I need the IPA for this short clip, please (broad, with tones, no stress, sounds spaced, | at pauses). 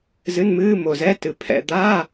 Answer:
z ɨ˧˥˧ n m ɨː˧˥˧ m o˨ z ɛ˧˥˧ t ɨ˨ pʰ ɛ̰˧˥˧ d̪ aː˧˥˧